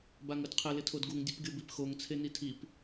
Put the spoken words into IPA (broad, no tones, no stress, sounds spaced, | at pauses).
b a ŋ ʊ d qʰ ɪ l ɪ tʰ o d ɡ u ŋ dʲ ʊ p ɡʲ o b i p x o ŋ t͡sʰ e n i tʰ i p